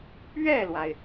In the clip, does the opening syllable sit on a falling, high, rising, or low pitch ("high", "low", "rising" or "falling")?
falling